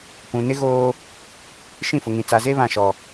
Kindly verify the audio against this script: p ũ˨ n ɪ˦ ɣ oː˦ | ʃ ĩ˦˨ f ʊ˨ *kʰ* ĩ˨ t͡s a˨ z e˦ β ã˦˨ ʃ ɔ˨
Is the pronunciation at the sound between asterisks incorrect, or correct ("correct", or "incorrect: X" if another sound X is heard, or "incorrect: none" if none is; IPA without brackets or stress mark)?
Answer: incorrect: ŋ